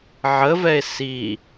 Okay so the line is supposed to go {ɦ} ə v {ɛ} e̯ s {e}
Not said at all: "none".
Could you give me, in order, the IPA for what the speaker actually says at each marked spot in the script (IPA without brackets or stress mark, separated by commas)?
ʕ, ɛ, i